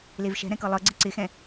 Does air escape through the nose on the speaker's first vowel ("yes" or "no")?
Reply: no